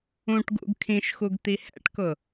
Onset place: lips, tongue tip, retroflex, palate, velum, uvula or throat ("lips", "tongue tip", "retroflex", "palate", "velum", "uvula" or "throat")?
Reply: retroflex